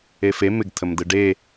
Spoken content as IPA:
efe mɪɡtʰəmdɯ ɖe

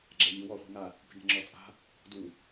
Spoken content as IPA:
ɡ͡ǁaʎi wɔ χʷi̤ŋa | pi̤nɛ̤ŋ͡ǁɔ t͡sʼa̤ | du

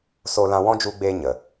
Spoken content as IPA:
so˧lã˧ wɔ̃˦d͡ʒu˧ɡ͡beː˧ ɲə˨

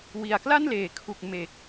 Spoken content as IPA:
wi˩˦a̯kla˥˩nleː˩˦ kʰu˨˩k̚ me˨˩k̚

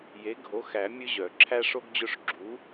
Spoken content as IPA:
je˨˥ɡʱo˨˥ xæ˨˩˦ mʲɵ˦ʑœ˨˩˦ ǁʰæ˦ʂo˦ɡd͡ʑɵ˦˨ʂ ɡ͡ǁu˨˥

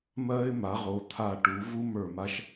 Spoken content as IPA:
mɜ˦ɪ̯ ma˩˧ʁo˩˧t̪ʰa˧˩ ʈu˩˧vu˦ mə˞˧˩ma˦ʃ

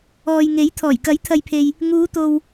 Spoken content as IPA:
ɔː˨jŋe˨˥j t̪ʰɔː˨˩jkɐ˨˥jt̪ʰɐ˨jpʰe˨j | ŋuː˨˧t̪o˨w

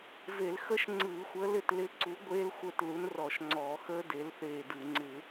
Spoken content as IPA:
ve˧˩˧lxə˦˥ʃ ŋ͡ǀɯː˧˩˧xʷəː˨˥ lɪ˦˨tlɪ˦˨ǀu˨˥ ɡʷeː˦˥lxʷə˞˦˨t lu˨˥nrɔ˧˩˧ʃŋ͡ǀɔː˧˩˧xəː˦˥ de˨˥lθeː˦˨dɯ˧˩˧ ŋ͡ǀɪ˧˩˧

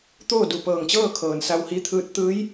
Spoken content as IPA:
t̪oː˥˨du˧˩pɤː˧˩ŋt͡ɕɤː˥˨ kʰɤː˩nsa˧whi˧˥t̪ʰɯː˧˥t̚ t̪ɯː˧˥j

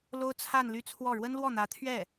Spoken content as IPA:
lo˥ʊ̯t͡sʰa˥˧nly˥˧t͡sʰwɔ˥˩ ɻwə˥n lwɔ˥˩n̪ä˧˥t̪ʰɥɛ˥˩

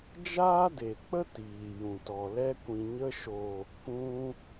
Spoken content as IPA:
d͡ʒaː˦de˨k͡pə˦ tiː˨jũ˨tɔ˨ lɛ˧kʷĩ˨ɲə˧ʃo˨ | kũ˧

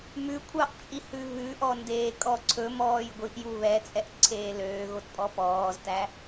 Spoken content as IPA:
mʉkʷʰɑʔt͡ʃʼihʉ βʉʔɔ ndeːkʼɔǀʰɵ mɔːjɡʷiʔju βɛt͡sʼɛʔ ǀʰeːløːɣotpʼɔ pɔːztæ

